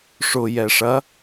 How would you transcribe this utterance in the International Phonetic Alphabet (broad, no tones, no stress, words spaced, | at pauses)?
ʂʊ jɛʂɐ